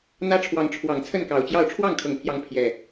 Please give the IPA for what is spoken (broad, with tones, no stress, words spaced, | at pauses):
n̪ä˦ʈ͡ʂʰwɑ˨˦ŋ ʈ͡ʂʰwɑ˨˩ŋ t͡sʰə˥˨nkɑ˨˩ʊ̯t͡ɕjɑ˥˨ʊ̯ ʈ͡ʂʰwɑ˥˨ŋkʰɤ˨˩ŋpʰjɑ˨˦ŋ pʰjɛ˨˩